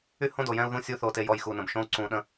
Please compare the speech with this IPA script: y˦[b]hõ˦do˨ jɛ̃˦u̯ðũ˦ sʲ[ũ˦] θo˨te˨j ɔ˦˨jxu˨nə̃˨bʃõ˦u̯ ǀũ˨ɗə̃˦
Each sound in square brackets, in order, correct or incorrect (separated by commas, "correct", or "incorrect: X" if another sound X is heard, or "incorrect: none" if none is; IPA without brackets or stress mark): incorrect: none, incorrect: u˦